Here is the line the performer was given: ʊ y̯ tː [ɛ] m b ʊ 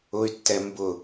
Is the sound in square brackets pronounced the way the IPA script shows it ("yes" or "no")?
yes